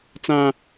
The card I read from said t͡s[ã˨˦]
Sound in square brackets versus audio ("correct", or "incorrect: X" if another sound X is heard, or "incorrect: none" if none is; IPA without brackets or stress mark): incorrect: ã˦